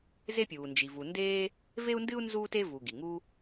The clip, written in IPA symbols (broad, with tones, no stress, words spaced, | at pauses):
ze˥pʲuː˩nd͡ʒi˩ vu˩ndeː˥ | ve˥u̯ndɨ˥u̯ nzuː˥te˥ vu˩ ɡi˩ŋu˥